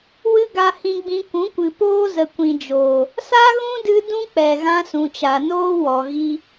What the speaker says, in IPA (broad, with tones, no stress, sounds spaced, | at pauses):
w ɨ˦ ɡ a˧ h ĩ˧ ɡ͡b ĩ˧ kʷ ũ˨˦ kʷ ɨ˨ p oː˦ z ə˨ kʷ ĩ˨ d͡ʒ oː˨ | s a˦ ɣ ũ˦ d ɨ˧ d ũ˦ k͡p ɛ˨ ɣ ã˧ s ũ˨ t͡ʃ a˨ n oː˦ w ɔ˨ ɣ i˦